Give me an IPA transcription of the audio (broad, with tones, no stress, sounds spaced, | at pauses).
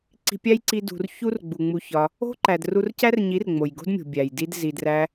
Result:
ǀ i̤˧ pʲ æ˦ j ǀ i˧ d ṳ˨ r ç u˦ r ɡ͡b u˨ ŋ͡m u˧ ç ɒ˧ | o̤˦ ǃ æ˨ d r u˧ r c æ˦ r ɲ i˨˦ r ŋ͡m o˨ j ɡ o̤˦ d mʲ o̤˨ bʲ æ˨ j d i˦ d z i˧ d r æ˦